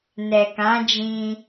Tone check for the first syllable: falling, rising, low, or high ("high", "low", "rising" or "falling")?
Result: low